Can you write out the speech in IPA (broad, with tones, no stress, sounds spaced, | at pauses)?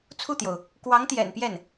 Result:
t͡sʰ u˥˩ t̪ j o˩ ʊ̯ | k w ɑ˧˥ ŋ t̪ j ɛ̰˨˩ n p j ɛ˥˩ n